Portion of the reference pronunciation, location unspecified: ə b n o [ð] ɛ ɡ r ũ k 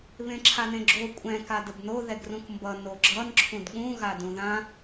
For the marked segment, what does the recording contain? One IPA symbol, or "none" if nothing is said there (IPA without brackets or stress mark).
ð